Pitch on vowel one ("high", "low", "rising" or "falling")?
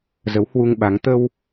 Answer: rising